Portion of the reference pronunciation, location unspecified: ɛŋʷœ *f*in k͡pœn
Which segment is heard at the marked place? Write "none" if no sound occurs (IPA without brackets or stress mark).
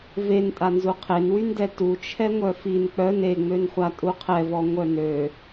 f